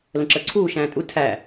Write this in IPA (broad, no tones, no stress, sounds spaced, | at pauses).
l ə̃ ǁ ə ǀʰ uː ʃ æ̃ː tʼ u tʰ æ